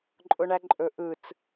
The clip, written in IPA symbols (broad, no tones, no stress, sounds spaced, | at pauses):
ǃʼ ʊ ɳ æ ǃʼ ɵ ʔ ɯ t͡s